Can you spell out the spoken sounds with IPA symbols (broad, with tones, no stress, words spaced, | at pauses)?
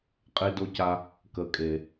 qʼe˥do˥ca˥ | kə˧kʼe˧